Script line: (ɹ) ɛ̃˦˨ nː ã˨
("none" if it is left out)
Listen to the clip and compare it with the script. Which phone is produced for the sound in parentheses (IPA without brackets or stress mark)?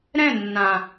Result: ɾ